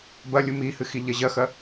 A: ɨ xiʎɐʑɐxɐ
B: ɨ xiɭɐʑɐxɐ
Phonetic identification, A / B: A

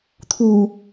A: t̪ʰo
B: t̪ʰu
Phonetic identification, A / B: B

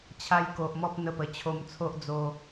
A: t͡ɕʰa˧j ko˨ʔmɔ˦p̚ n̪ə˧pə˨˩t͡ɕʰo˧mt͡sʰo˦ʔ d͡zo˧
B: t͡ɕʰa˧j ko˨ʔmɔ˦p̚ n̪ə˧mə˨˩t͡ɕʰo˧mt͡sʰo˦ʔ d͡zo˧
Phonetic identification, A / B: A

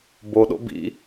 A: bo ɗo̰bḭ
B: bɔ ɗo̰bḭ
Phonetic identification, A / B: A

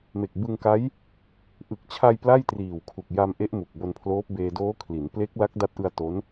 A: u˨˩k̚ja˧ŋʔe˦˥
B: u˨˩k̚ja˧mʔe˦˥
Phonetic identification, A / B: B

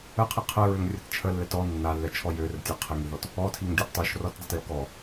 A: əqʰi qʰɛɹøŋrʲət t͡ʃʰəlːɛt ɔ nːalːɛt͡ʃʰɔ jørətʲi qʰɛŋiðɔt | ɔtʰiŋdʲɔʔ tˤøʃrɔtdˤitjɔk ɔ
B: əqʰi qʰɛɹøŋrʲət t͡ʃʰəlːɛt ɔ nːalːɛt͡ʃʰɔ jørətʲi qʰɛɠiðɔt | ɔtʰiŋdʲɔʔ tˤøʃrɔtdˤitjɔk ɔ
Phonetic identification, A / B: A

